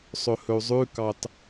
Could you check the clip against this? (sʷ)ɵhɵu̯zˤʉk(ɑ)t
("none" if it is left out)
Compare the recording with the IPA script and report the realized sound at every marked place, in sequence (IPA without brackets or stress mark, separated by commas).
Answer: sˤ, ɑ